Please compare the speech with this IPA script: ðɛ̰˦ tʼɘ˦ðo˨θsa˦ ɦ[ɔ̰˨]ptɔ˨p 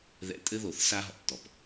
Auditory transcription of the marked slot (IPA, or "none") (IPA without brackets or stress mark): ɔ̰˨